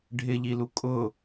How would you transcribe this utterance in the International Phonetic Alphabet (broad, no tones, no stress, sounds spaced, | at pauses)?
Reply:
ɖʱ ɪ ʎ i l u kʼ ʊ